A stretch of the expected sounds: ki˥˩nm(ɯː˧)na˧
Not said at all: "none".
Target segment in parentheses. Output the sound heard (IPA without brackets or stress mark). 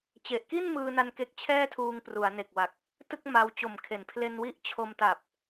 ɯː˧